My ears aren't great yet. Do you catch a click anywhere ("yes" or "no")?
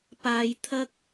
no